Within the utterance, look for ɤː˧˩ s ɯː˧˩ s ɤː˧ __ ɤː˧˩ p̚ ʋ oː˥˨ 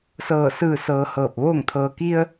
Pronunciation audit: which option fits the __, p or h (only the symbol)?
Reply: h